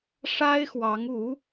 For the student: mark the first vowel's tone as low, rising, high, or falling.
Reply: high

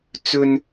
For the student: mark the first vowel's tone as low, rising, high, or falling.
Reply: high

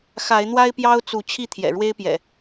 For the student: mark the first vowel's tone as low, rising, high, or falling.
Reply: rising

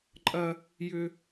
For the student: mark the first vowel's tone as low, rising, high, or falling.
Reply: high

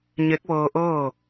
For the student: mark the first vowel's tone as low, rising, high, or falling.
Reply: rising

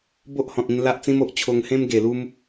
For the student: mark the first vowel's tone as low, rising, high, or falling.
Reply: high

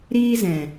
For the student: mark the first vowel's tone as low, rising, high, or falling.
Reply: high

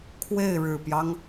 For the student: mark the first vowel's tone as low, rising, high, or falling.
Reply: falling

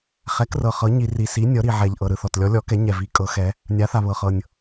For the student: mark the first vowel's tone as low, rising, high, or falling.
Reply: rising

